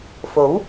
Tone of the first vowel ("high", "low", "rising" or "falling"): rising